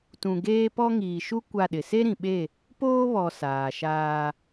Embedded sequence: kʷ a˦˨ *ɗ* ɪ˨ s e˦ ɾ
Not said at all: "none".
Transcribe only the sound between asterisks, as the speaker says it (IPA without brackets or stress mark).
ɗ